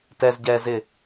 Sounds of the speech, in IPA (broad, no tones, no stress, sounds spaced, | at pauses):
t ɛ z ɟ ɛː z ɪ